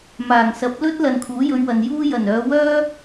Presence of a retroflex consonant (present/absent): absent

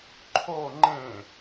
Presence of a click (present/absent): present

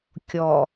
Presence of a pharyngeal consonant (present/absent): absent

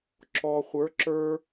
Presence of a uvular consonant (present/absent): present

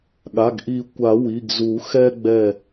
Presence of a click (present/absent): absent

